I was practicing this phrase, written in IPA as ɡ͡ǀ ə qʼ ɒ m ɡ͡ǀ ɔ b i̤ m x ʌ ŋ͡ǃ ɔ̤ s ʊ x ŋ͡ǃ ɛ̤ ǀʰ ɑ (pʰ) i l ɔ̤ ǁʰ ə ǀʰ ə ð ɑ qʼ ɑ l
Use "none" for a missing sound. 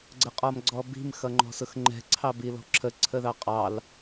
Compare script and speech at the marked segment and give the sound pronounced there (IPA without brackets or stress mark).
b